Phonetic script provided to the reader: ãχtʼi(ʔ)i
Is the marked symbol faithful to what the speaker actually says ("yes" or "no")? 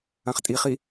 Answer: no